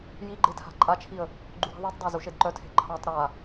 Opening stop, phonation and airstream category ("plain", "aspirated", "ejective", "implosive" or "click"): click